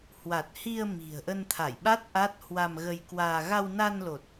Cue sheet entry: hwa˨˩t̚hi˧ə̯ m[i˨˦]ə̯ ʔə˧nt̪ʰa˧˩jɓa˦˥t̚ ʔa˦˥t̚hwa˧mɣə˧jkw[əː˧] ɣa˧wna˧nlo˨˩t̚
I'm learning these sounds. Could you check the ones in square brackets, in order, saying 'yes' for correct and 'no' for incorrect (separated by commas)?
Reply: no, no